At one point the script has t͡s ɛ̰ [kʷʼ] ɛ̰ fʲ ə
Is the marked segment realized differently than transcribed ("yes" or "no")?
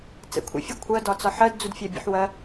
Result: yes